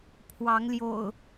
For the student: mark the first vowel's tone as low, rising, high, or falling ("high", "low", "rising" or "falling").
rising